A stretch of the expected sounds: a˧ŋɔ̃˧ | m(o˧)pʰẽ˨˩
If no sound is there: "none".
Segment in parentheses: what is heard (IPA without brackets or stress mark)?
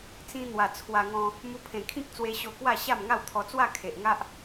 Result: u˧